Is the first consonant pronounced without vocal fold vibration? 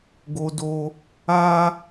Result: no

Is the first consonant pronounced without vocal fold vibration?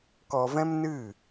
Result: yes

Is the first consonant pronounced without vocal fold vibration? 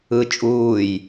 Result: yes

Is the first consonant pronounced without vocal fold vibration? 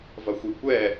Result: no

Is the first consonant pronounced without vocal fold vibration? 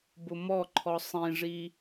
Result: no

